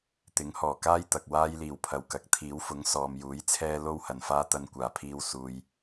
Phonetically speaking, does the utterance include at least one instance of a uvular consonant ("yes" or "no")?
no